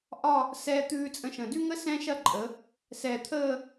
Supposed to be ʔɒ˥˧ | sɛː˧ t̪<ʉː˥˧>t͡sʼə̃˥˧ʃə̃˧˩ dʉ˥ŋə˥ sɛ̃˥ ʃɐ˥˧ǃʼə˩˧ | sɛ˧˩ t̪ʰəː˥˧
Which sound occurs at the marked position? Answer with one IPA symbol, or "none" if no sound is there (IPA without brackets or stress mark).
ʉː˥˧